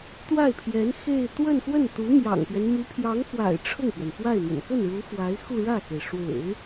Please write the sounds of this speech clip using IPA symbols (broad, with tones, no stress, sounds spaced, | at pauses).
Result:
t̪ w a˥˩ ɪ̯ pʰ j ɛ˧˥ n x e˥˧ ɪ̯ t̪ w ə˥˧ n x w ə˥˩ n t̪ u˧˥ m j ɑ̰˨˩ ŋ p ɥ ɛ˦ n m y˧˥ pʰ j ɑ˧˥ ŋ f w a̰˨˩ ɪ̯ ʈ͡ʂʰ ʊ˥˩ ŋ p ɥ ɛ˩ n f w a˥˩ ɪ̯ m ə̰˨˩ n k ə˥˩ n ɻ u˧˥ f w a˧˥ ɪ̯ x u˥˧ ɻ ä˥˩ x e˩ ɪ̯ ʂ w ḛ˨˩˦ ɪ̯